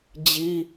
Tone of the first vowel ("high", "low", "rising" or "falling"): high